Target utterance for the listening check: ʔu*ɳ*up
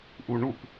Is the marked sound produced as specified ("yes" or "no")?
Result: yes